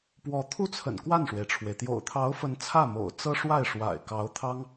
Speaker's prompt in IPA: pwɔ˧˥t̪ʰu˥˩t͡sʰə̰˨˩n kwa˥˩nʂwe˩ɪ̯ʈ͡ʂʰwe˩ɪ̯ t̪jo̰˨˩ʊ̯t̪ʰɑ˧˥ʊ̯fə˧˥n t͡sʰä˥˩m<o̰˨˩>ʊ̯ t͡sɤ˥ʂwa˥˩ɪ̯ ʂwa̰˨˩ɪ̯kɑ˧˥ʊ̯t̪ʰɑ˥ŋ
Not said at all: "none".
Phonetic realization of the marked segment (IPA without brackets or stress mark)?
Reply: o̰˨˩